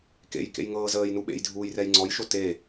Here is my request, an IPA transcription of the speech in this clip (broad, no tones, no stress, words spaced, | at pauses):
kḛjkḛjŋɤː zəːjnu ɓḛjdʱuːjrɛj ŋ͡ǀɔjʃo te